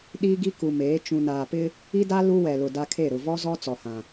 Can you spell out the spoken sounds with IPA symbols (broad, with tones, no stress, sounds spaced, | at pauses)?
ɗ iː˦ ɡ i˦ k u˨ m eː˨˦ t͡ʃ ũ˨ n aː˨ p ɪ˦ | i˦ d a˦ l u˦ w ɛ˨ l ʊ˨ d a˦ kʰ e˦˨ ɾ ʊ˨ v ɔ˦ z ɔ˦ t͡s ɔ˨ h ã˨